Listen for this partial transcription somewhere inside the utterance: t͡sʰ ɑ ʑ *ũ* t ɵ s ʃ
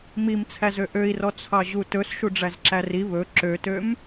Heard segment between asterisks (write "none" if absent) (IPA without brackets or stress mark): u